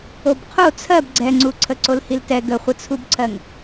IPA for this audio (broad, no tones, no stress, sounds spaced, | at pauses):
o b qʰ o t͡sʰ ɜ b ɡ͡ǀ ɛ ŋ͡ǀ u ǀʰ ə ǀ o l h i l t ɛ ɡ ə χʷ ə t͡sʰ u b ǀʰ ɜ ŋ